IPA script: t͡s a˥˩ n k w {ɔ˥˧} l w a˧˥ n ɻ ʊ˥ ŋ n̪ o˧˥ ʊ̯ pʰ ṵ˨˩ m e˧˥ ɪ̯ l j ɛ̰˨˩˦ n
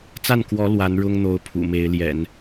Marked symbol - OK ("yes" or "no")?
no